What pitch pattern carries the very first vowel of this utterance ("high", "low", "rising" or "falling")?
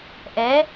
rising